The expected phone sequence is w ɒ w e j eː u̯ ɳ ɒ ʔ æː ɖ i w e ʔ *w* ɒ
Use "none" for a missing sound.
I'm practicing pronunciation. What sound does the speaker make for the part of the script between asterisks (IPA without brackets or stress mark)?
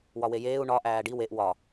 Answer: w